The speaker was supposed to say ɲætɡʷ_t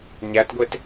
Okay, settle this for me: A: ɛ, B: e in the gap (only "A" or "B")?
B